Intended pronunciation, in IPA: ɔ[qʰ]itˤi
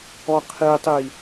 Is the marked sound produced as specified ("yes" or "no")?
yes